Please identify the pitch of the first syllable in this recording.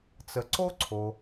low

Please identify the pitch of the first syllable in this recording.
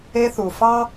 high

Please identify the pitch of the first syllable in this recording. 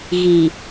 low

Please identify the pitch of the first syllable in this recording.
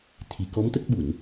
low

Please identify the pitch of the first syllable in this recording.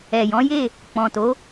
low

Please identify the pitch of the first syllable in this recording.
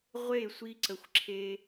falling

